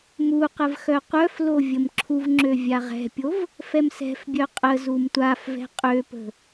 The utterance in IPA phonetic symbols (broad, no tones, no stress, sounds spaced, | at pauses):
m u q ə v x œ qʷ œ f l o vʲ ə m ǁʰ u v ŋ͡ǁ ø vʲ a ʁ ɛ̤ pʲ o v | f ɛ m s ɛ̤ f bʲ œ qʼ ə z u m tʷ a f v ɛ̤ qʼ ø p ə̤